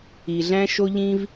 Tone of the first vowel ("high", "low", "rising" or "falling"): low